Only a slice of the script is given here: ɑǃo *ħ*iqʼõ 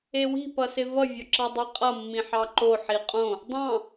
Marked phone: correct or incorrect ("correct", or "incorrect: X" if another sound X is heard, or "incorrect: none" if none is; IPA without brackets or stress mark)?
correct